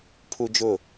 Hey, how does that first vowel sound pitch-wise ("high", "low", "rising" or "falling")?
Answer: high